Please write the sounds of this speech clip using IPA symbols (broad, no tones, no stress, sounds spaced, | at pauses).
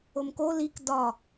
o m k o l i k d ɒ